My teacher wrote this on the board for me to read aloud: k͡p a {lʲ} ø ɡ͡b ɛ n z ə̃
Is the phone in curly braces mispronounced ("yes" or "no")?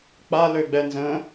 yes